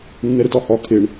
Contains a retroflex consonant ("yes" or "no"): yes